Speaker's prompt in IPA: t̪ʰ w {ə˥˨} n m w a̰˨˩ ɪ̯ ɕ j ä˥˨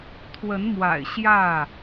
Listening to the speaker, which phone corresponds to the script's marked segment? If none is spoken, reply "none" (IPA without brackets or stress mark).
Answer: ə˨˦